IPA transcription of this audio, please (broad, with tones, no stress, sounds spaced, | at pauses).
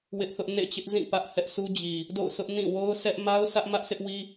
w ɪ˦ ʔ θ ʊ˦ ʔ n ḛ˦˨ t͡ɕ ɪ˦ ʔ z ĩ˦˨ p ä˦ ʔ h ɛ˦ ʔ s u˦ d͡ʑ i˨ | d o̰˦˨ ʊ̯ s ʊ˦ ʔ n ĩ˦˨ w o˦ ʊ̯ sʰ ɛ˦ ʔ m a˦ ʊ̯ s ä˦ ʔ m ä˦ ʔ sʰ ɪ˦ ʔ w i˦